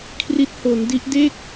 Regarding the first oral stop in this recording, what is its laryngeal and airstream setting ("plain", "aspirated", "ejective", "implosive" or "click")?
aspirated